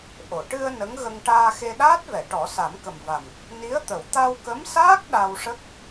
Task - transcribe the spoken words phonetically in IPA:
ʔ o˨˩˨ ʈ ɨ˧ ə̯ n ə˧˥ ŋ ɣ ə˧ ŋ ʈ aː˧ x e˧ ɗ aː˦˥ t̚ v ɛ˨˩˨ ʈ ɔ˨˩˦ s a˨˩˦ m k ə˨˩ m v a˨˩ m | n i˧˥ ə̯ t̪ ə˨˩˨ w t̪ a˧ w k ə˧˥ m s aː˦˥ k̚ ɗ a˧ w ʂ ə˦˥ k̚

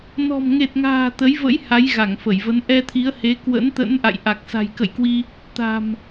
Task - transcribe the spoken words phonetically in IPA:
n ɔ̤˨˩ m ŋ e˨˩ t̚ ŋ a̤ː˨˩ t̪ ə˨˦ j v ə̰˧˥ j h a˨˦ j ɣ a˧˩ ŋ f ə˧˩ j v ə˨˦ n ʔ ɛ˧ t̪ʰ i˨˦ ə̯ h e˨˦ k w ə̰˧˥ n t̪ ə̰˧˥ n ʔ a̰˧˨ j ʔ a˨˩ k̚ s a̤˨˩ j k ə̰˧˨ j k w i˧ | t̪ a̤˨˩ m

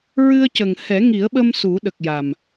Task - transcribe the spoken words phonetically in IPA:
ɹ ɨ˧ ə̯ c ə˨˩ ŋ h ɛ˨˩˦ ŋ i˨˩˦ ə̯ ɓ ə˧ m s u˨˩˦ ɗ ə˨˩ k̚ j a˨˩ m

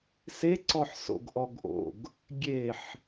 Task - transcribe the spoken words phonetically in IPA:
s e ǀ ɔ ħ s o̰ ɡ ʔ ɔ ɡ ʔ o̰ ɡ | ɡʲ e ħ

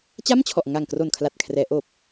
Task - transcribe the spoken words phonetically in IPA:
t͡ɕ a˥˩ m t͡ɕʰ ɔ˨˩ ʔ ŋ a˨˩ ŋ k r o˨˩ n kʰ l a˨˩ t̚ kʰ r ɛː˩˦ ʔ oː˨˩ p̚

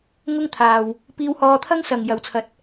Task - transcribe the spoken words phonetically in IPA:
ŋ ʊ˥ ŋ t̪ʰ aː˨ w | p iː˧ w h ɔː˧ t̪ʰ ɐ˥ ŋ s ɐ˨ ŋ j ɐ˨ w t͡sʰ ɐ˨˥ t̚

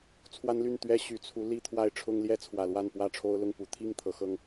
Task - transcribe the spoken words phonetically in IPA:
t͡sʰ w a˦ n l y˥˨ n t̪ ɥ ɛ˦ ɕ y˨˩ t͡sʰ u˨˦ l i˥˨ t̪ʰ w a˥˨ ɪ̯ ʈ͡ʂʰ ʊ˦ ŋ l j ɛ˦ t͡sʰ w ä˨˩ l w a˥˨ n p w ä˥˨ ʈ͡ʂʰ o˦ ʊ̯ l ʊ˥˨ ŋ p u˨˩ t̪ʰ i˥˨ ŋ t̪ʰ ɤ˨˦ x ɤ˦ ŋ

